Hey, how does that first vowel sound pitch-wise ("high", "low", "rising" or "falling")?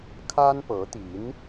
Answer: high